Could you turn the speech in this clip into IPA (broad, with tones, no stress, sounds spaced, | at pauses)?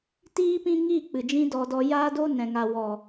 t iː˦ p ĩ˦ ŋ i˦˨ k͡p ɨ˨ d͡ʒ ĩ˦ d ɔ˧ d ɔ˧ j aː˦ d o˦ n ɛ̃˨ ŋ a˨ w ɔ˨